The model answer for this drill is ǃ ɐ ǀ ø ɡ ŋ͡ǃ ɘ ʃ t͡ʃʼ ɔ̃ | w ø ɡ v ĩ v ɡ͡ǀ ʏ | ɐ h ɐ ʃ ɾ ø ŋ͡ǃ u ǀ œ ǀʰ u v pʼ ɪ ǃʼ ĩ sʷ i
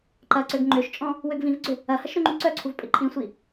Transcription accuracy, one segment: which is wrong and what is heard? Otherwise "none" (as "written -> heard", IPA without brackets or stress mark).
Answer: ɘ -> ø